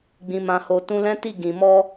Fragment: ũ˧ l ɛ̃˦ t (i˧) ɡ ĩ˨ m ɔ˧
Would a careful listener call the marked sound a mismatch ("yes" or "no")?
yes